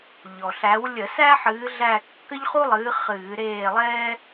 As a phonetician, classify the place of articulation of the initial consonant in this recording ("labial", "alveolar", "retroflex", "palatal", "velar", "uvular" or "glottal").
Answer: palatal